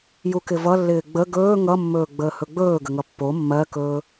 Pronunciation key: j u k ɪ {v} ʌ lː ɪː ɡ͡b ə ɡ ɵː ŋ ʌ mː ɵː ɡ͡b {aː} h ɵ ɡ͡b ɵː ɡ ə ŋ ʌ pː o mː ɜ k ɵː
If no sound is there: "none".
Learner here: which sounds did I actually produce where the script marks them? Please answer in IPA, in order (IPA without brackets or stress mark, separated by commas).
v, əː